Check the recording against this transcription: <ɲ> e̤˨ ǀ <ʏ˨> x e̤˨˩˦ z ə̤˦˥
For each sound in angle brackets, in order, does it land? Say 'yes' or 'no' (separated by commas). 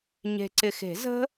yes, no